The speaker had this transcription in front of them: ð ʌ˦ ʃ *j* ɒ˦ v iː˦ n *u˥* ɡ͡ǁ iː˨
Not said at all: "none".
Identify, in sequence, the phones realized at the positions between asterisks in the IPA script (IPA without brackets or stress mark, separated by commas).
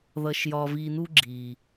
j, u˥